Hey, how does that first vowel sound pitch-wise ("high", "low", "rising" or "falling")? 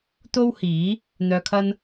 high